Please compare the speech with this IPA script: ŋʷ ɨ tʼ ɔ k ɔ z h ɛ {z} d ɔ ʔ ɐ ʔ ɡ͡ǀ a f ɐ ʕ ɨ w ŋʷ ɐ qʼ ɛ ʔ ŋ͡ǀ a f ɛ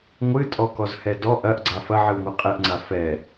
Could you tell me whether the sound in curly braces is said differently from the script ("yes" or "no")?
yes